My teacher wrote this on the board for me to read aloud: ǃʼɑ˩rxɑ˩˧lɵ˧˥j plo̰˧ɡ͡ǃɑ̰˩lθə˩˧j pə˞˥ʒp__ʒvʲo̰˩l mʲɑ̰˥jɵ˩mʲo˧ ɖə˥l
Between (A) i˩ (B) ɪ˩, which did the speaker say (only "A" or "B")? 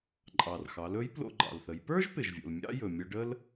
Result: B